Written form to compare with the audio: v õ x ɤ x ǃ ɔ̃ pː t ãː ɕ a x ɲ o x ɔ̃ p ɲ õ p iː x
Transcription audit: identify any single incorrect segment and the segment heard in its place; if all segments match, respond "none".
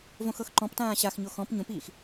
pː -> p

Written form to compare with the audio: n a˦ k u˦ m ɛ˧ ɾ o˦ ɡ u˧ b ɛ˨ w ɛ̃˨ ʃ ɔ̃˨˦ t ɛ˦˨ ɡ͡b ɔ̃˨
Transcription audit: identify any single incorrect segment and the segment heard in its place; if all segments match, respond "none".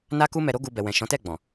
none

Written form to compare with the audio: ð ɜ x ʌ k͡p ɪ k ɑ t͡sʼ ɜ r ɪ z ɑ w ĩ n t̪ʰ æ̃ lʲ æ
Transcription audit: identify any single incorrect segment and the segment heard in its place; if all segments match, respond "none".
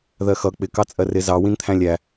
none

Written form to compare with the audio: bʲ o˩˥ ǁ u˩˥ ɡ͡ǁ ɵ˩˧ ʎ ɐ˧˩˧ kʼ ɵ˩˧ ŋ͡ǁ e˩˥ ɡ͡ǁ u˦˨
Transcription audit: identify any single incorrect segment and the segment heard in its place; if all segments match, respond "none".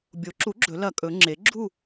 ʎ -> l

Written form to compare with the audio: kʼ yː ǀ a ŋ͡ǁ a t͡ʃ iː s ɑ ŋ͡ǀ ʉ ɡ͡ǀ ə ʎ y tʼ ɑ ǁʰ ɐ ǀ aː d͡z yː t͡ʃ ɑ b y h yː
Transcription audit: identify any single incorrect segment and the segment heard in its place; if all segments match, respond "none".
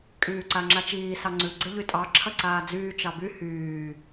none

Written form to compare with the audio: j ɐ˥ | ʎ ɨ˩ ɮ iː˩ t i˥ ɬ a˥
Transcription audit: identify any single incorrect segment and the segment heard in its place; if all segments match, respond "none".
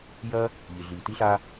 none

